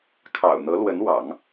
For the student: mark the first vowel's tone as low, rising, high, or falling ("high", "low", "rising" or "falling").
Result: low